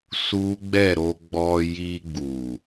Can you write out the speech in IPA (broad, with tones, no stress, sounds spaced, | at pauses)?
s u˦ ɡ͡b ɛ˦˨ ɾ o˧ ɡ͡b ɔ˧ j i˧ ɡ͡b u˨